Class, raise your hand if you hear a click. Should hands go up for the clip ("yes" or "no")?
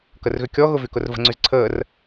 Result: yes